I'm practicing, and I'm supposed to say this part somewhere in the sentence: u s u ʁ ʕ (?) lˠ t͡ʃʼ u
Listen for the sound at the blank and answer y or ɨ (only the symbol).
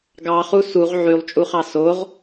y